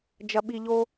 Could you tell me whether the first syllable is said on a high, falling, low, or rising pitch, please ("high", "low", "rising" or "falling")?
low